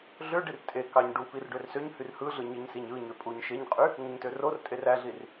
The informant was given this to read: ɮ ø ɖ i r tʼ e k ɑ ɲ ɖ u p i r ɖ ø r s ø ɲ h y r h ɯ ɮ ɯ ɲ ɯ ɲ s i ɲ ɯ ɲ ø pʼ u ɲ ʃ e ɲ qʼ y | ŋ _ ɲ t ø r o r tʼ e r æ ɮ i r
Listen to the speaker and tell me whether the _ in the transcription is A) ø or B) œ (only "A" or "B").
A